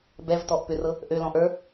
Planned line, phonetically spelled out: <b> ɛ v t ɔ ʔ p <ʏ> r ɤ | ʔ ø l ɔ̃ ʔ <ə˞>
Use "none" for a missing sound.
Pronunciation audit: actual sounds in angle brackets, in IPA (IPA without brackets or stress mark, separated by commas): b, ʏ, ə˞